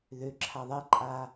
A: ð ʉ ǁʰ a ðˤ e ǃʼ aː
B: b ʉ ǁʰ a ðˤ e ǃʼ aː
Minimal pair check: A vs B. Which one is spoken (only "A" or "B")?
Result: A